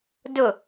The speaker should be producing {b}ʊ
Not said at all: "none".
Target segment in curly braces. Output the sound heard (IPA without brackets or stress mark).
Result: d